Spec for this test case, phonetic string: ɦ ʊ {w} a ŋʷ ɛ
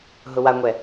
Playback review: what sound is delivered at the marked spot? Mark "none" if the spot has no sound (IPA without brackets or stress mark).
w